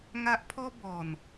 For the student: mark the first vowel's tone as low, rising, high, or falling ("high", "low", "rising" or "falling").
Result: high